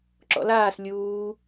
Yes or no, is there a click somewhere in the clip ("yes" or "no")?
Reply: yes